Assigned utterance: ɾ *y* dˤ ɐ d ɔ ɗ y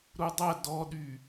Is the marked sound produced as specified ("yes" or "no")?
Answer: no